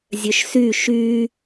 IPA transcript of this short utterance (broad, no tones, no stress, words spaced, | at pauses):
zʲœʃsy ʃy